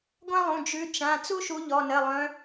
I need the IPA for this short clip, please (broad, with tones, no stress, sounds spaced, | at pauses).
ɡʷ ã˥ lˠ ũ˩˧˩ d͡ʒ ʉ˨˦ t͡ʃ ã˩˧˩ t͡s u˥ ʃ u˨˦ ʎ ɔ˩˧˩ n ɘ˩˧˩ lˠ œ̃˨˦